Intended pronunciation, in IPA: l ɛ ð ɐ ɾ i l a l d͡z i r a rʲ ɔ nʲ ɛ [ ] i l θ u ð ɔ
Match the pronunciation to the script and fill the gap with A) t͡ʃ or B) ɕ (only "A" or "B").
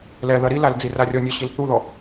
B